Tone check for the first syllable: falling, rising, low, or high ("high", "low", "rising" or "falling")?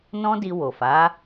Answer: high